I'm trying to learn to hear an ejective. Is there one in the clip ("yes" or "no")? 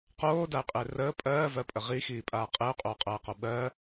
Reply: yes